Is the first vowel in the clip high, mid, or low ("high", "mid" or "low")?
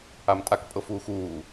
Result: low